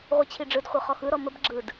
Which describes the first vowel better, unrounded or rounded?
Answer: unrounded